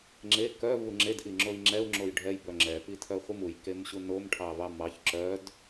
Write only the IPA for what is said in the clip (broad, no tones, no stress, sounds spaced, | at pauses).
ŋ͡ǁ e k œ v u ŋ͡ǁ e d ʔ i ŋ͡ǁ o i̯ ŋ͡ǁ ɛ u̯ ŋ͡ǁ o j ɖʱ ɛ j b œ ŋ͡ǁ ɛ p i tʰ œ χʷ i m u j k e m ɕ u n o m ʈʰ ɑ v ɑ m ɑ ç ǁ œ d